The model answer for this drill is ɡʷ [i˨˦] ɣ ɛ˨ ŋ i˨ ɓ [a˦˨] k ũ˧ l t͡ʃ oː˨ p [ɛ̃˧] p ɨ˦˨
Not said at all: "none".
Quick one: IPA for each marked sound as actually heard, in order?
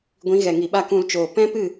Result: ĩ˨˦, a˦˨, ɛ̃˦

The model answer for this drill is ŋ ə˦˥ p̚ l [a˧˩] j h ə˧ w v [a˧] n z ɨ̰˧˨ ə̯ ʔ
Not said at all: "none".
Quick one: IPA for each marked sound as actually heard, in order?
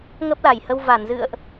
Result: a˧˩, a˧˩

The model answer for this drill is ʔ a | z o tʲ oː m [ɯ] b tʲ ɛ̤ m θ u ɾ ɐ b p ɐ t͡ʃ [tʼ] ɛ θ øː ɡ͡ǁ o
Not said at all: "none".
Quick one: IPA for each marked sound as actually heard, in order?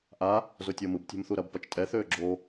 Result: ɯ, tʼ

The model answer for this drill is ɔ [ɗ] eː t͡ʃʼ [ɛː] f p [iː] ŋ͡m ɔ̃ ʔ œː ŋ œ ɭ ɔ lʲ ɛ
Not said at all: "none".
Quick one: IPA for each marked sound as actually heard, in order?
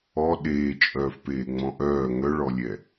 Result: ɗ, œː, eː

